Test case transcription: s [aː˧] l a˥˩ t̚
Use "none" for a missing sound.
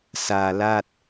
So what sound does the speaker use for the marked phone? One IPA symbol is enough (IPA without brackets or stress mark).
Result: aː˧